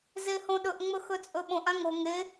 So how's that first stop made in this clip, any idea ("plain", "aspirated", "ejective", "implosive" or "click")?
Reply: implosive